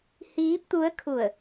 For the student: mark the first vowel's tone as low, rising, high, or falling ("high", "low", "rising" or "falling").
rising